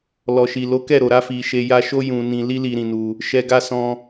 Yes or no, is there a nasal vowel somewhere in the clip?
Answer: yes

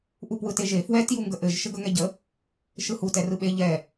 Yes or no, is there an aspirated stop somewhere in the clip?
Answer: no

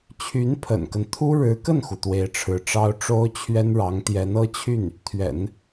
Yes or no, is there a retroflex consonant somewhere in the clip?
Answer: yes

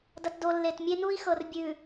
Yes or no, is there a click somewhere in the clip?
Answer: no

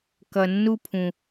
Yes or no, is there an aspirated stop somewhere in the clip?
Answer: yes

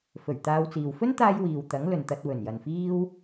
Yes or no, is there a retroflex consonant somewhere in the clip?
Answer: no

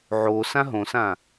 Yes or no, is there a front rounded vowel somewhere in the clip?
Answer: no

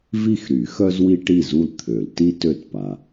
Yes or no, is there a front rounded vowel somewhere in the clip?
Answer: yes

